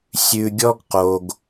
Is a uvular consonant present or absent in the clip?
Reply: present